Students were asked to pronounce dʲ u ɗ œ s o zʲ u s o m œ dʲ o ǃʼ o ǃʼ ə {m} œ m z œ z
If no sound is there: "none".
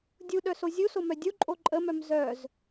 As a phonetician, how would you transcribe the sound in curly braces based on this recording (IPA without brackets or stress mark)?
m